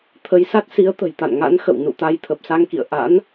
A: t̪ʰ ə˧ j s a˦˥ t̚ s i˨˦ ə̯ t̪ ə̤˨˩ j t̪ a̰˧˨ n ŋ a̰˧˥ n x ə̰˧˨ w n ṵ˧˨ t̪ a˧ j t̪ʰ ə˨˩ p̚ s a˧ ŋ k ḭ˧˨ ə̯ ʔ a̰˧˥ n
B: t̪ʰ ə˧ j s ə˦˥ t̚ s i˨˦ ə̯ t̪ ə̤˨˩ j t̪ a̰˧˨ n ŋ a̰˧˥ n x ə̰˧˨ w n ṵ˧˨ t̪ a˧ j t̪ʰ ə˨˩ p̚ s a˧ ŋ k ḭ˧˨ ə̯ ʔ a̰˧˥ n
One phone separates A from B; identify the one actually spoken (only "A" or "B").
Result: A